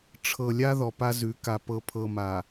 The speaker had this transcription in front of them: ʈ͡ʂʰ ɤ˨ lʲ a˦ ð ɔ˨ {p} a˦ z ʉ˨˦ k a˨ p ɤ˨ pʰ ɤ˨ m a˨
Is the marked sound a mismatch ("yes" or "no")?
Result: no